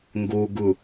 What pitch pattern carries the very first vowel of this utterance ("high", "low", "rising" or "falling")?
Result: low